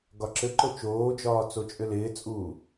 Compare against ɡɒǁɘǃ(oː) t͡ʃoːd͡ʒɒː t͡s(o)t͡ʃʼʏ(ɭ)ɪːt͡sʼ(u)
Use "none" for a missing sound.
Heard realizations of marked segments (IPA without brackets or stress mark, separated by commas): o, o, l, uː